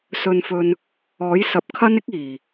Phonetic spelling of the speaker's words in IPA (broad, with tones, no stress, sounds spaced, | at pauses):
s ɵ˧ n f ɵ˧ n | ɔː˨˥ j s ɐ˨˥ p̚ kʰ ɐ˥ n ɪ˥ k̚ iː˨˩